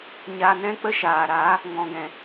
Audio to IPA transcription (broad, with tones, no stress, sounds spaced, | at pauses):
ɲ aː˧ n ɛ̃˦ k͡p ə˦ ʃ aː˨ ɾ a˨˦ | ŋ ɔ̃˨ ɡ ɛ̃˨